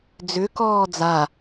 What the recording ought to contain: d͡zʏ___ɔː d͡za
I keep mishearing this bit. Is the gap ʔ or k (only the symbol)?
k